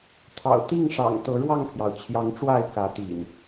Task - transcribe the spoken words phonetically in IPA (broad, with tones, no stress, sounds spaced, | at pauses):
t̪ʰ ɑ̰˨˩ ʊ̯ t̪ i˥˨ ŋ ʂ ɑ̰˨˩ ŋ t̪ ɤ˨˦ ɻ w ɑ˥˨ ŋ pʰ j ɑ˩ ʊ̯ t͡ɕʰ j ɑ˨˦ ŋ ʈ͡ʂ w a˥˨ ɪ̯ k ä˨˦ t̪ ḭ˨˩ n